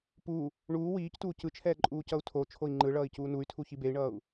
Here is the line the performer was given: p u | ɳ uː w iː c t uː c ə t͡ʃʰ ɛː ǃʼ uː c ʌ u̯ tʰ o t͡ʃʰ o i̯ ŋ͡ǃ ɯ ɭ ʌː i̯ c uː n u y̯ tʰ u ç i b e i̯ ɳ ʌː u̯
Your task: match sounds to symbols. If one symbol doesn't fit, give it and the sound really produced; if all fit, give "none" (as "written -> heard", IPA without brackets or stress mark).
ə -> ɯ